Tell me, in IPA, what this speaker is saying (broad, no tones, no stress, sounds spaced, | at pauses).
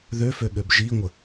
ð ø f ø ɠ ø b ʒ i ŋʷ ə